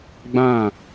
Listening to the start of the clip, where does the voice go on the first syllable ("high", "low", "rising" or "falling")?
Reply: falling